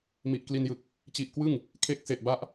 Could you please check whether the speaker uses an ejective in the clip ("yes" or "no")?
no